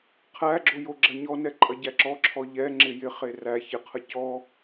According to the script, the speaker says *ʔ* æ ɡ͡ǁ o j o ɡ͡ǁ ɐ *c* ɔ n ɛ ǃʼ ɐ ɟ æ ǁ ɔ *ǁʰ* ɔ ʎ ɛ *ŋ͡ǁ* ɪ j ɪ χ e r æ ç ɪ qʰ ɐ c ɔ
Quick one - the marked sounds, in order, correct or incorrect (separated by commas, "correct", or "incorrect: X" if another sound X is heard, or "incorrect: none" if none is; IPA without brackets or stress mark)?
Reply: incorrect: qʰ, incorrect: ɲ, correct, correct